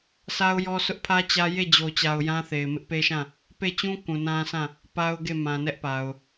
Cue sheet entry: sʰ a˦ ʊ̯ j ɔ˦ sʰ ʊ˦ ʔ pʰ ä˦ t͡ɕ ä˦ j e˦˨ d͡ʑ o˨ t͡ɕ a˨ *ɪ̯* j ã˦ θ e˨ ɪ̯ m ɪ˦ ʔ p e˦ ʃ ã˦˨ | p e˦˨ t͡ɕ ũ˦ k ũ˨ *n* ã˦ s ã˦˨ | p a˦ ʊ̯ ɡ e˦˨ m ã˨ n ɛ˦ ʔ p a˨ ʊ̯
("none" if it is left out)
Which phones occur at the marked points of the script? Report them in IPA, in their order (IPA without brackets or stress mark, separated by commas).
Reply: ʊ̯, n